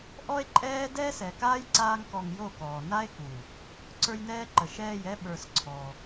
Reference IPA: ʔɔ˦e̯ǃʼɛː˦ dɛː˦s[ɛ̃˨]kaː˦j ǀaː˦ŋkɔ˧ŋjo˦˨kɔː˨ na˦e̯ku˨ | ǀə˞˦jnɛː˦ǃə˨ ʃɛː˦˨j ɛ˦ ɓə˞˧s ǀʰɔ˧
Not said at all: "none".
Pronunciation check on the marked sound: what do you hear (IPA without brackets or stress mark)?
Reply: ɛ˨